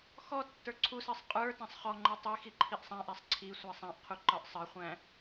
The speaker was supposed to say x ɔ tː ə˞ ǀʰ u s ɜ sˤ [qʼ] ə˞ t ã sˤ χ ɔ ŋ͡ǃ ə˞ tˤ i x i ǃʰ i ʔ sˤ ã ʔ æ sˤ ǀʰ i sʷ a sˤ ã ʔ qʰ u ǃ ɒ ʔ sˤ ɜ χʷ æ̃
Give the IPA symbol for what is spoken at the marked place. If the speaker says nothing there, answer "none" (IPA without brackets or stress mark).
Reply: qʼ